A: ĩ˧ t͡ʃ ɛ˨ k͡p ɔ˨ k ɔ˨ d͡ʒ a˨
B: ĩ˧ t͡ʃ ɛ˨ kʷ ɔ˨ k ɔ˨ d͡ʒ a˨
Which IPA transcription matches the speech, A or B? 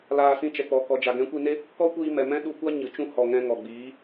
A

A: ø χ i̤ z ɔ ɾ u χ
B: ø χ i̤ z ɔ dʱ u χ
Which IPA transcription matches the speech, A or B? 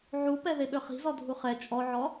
B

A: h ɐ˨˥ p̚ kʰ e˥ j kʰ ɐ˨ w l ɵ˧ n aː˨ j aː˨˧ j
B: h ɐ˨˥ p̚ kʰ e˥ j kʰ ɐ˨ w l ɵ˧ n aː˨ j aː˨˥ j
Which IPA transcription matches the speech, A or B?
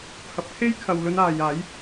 B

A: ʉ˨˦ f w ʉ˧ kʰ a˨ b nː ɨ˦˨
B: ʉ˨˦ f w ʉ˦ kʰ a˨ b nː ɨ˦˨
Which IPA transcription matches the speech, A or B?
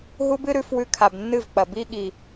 A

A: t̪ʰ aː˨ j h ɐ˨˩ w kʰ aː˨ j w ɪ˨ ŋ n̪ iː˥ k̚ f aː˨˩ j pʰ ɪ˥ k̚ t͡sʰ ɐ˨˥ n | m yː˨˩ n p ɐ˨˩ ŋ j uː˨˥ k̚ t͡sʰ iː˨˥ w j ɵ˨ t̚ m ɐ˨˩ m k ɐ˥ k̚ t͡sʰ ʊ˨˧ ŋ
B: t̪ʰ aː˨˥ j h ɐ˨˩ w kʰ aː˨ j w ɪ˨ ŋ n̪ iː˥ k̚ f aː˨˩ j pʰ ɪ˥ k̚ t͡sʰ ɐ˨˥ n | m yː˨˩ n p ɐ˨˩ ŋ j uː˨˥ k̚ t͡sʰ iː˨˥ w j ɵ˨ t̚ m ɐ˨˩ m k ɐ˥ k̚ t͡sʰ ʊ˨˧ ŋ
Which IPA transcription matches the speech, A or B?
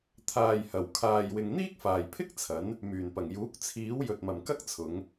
A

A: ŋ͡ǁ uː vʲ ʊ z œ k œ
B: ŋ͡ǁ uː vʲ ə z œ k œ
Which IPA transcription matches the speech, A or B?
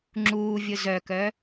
A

